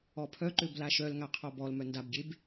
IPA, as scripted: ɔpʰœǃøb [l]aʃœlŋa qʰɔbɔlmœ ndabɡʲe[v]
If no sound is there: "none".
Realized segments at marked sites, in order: l, b

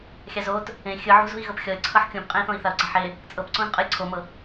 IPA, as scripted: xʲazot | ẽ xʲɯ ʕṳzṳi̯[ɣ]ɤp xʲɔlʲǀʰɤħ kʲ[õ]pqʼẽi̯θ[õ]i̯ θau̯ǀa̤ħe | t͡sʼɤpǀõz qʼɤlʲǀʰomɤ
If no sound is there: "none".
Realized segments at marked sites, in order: ɣ, õ, õ

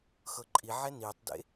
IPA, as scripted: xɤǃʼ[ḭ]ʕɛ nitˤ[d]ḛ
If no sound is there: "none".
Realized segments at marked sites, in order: i, d

